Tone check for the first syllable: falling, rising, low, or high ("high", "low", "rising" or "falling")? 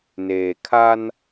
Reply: low